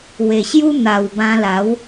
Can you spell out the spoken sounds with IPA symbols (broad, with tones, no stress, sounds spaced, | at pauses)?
w e˨˩ ɕ j u˦ n̪ a˨˩ w b ã˧ l a˨˦ w